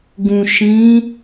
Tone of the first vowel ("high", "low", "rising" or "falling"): low